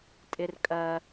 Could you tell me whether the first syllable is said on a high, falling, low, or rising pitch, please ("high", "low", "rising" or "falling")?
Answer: high